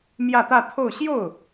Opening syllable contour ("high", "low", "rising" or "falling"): falling